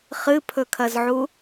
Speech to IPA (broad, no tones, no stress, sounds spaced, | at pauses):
χ ɨ pʰ ɵ kʰ ɐ z ʕ u